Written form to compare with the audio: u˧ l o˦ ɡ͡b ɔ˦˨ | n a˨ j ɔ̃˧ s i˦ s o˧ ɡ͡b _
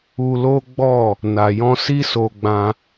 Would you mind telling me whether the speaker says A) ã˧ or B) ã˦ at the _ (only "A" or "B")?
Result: A